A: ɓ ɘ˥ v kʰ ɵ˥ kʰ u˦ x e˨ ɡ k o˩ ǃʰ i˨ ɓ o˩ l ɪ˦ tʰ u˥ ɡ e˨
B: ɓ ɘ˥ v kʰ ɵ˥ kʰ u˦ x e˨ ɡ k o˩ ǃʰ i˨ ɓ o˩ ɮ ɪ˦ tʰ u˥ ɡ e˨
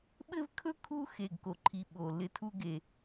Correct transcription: A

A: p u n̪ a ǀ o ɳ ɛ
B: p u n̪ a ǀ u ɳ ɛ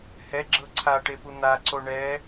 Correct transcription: A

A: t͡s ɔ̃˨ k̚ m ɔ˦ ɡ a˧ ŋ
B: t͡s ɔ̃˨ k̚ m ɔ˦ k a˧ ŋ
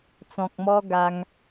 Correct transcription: A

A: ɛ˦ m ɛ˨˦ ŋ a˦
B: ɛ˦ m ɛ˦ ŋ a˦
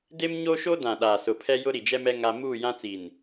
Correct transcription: B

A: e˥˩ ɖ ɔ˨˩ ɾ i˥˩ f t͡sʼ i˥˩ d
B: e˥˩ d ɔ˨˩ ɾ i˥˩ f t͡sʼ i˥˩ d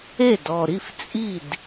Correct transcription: B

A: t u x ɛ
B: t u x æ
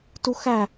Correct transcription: B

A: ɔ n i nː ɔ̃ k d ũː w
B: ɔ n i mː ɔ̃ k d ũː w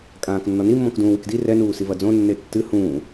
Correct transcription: B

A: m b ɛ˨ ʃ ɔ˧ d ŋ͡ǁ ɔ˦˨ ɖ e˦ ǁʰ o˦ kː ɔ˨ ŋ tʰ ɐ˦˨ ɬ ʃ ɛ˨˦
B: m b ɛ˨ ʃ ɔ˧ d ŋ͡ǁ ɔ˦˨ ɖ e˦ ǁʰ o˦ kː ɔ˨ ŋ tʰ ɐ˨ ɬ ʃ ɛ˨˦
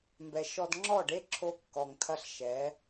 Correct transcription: A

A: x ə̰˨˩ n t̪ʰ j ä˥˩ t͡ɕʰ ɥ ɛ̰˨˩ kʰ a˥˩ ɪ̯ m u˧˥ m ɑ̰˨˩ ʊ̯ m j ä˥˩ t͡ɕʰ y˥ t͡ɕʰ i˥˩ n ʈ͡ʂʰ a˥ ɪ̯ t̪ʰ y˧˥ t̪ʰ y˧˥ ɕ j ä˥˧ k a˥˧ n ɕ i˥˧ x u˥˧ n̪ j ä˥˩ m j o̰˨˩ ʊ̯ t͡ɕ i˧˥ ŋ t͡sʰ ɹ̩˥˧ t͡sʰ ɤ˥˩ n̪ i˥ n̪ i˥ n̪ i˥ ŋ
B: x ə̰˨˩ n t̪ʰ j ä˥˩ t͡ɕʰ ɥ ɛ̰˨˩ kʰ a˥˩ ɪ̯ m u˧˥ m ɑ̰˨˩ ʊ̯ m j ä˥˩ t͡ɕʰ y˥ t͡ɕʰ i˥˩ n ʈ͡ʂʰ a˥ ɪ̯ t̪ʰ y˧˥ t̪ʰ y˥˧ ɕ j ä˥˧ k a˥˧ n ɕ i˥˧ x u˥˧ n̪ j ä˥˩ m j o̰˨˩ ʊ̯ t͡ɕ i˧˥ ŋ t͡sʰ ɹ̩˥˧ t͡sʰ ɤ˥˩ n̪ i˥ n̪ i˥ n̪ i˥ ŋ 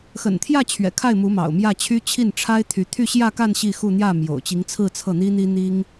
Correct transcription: B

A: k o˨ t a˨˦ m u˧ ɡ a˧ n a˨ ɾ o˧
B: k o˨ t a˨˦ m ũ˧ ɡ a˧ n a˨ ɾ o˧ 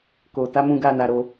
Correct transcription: B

